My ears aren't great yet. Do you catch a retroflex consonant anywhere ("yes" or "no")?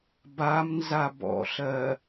no